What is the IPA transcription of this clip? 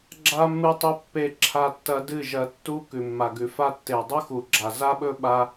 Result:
ɡ͡ǁ a˧ mː ɨ˧ tˤ ɵ˧ pː e˧ ǁʰ a˧ tː ɐ˧ d ɨ˦˨ ʒ ɐ˧ tː u˦ k ʉ˨ mː a˨ ɡ ʉ˨ f a˦ tː e˨ dˤ u˦ x u˨ ɡ͡ǁ a˨ z a˦ ɓ ɵ˦ ɓ a˦

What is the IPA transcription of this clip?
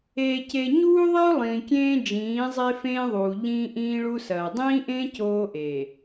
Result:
eː˨ c e˨ ɲ uː˦ ðˤ e˦ ʊ̯ lˠ ĩː˨ kʲ ẽː˦ d͡ʒ ĩː˨˦ zˤ e˦ f ẽː˦ ðˤ uː˨ ʎ ĩː˦ ʔ ĩː˦ ɭ u˦ s ɐː˨ dˤ ĩː˦ ʔ ẽː˦ c oː˦ ʔ eː˨

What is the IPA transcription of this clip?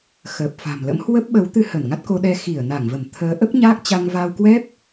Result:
x əː˨˩ p̚ f a̤˨˩ m l ə̰˧˥ m h w ə˦˥ p̚ ɓ ə˨˦ w t̪ ɨ˧ h ə˧˩ n ŋ a˦˥ t̚ k o˧ ɗ ɛ˧ x i˧˩ ə̯ n a˧˩ ŋ v ə˧˩ m t̪ʰ əː˨˦ ʔ ə˦˥ p̚ ɲ aː˦˥ k̚ t͡ɕ a˧ ŋ v a˧ w k w ɛ˦˥ p̚

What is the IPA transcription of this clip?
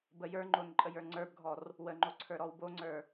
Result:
b ə j ə˞ ŋ͡ǃ o n ǃʼ ə j ə˞ ŋ͡ǀ ə˞ b ɡʱ ɔ r | w ə ŋ͡ǃ o ǀʰ ə˞ ɾ ɔ w b o ŋ͡ǀ ə˞

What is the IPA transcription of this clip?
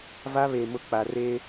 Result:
v a˦ β e˨ m ʊ˦ k͡p a˨ r e˦

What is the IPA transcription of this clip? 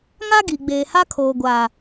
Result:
ŋ a˦ ɡ i˨ ɡ͡b eː˨ h a˦ kʰ oː˨ ɡʷ a˨

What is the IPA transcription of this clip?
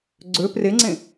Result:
ɡ͡ǀ ø p r e ŋ͡ǀ ẽ

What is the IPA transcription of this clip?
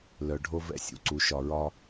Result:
l œ˨ ɖʱ o˦ v ɛ̰˦ sʲ ṵ˨ ǀ u˨˦ ʃ ɒ˨ ɹ ɒ˦

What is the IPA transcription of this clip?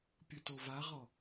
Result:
pʲ ɯ t o v a ʁ ɔ

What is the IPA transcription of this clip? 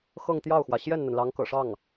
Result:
x ɤ˥˧ ŋ t̪ j ɑ˥˩ ʊ̯ x w ä˩ ɕ j ɛ˥˩ n n̪ ə˩ n l ɑ˧˥ ŋ k ɤ̰˨˩ ʂ ɑ˥˩ ŋ

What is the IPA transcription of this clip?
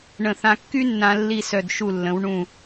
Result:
ɳ ə̃˧˩ θ ã˧ kː y˥ nː ã˧ lː i˥˧ s œ˧˩ d ʃ u˧˩ lː ə̃˩˧ w ɳ ũ˧˩

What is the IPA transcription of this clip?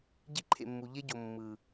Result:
ɟ i˦ ǃʰ ḛ˨ mː u˨ ʎ e˦ ɟ o˨ mː ɯ˨

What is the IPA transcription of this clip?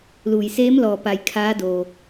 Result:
l uː˩ j s eː˧˥ m l ɔː˩ p a˩ j kʰ aː˧˥ d oː˩

